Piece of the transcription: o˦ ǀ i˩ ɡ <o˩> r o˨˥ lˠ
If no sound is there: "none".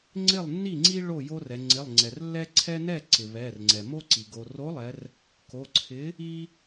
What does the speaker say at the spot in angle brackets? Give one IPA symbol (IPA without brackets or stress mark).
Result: o˩